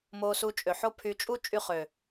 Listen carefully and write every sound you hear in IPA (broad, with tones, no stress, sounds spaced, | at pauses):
m oː˧ s u˧ t͡ʃʼ ø˨ ħ o˦ pʰ y˧ t͡ʃʼ u˦ t͡ʃʼ y˧ χ ø˨